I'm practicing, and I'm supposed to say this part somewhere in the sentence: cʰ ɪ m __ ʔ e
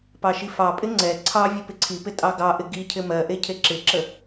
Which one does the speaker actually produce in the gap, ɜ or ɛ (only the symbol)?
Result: ɜ